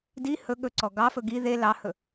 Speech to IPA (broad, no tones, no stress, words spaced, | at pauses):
di hɵ ɠɵǀɔ ɡɑfɵ ɡi ðe lɑhɵ